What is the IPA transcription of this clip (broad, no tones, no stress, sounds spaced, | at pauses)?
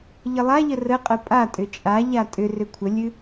ʎ ə lˠ a ʎ ə r ə qʼ ə pʼ a tʼ ʏ t͡ʃʼ a ʎ a tʼ ʏ r ʏ kʷʰ ə lʲ ɨ